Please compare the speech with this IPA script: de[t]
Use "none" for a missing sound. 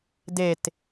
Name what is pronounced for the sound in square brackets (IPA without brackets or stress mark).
t